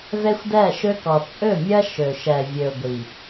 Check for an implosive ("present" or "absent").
absent